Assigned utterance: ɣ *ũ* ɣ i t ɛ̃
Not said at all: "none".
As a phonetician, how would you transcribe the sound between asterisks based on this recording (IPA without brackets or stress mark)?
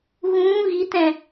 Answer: ũː